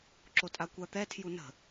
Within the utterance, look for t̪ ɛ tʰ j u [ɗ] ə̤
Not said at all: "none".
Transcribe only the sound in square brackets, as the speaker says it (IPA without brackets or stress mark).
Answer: n